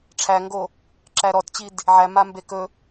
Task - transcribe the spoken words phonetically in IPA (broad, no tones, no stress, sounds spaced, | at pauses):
ʈ͡ʂʰ æ ŋ ɡ o | ǁ æ ɾ ɔ t t͡ɕ i d | ʕ æ m a m b e k ɵ